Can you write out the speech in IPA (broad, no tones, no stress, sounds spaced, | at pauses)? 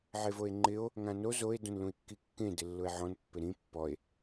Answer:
ʕ e v o e̯ ŋ͡ǃ ɪ o̯ | ŋ ã n o z o e̯ d õ n l ũ e̯ kː i kː ẽ d ɪ lː ʊ e̯ ʕ ɔ̃ n pː ɪ ɾ ĩ pː ɔ e̯